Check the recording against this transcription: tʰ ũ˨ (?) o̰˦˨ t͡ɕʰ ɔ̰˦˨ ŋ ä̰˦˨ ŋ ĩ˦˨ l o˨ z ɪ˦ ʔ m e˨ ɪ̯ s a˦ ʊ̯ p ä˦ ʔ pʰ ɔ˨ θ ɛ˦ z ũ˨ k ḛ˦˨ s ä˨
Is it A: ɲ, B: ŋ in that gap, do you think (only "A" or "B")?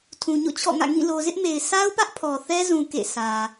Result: A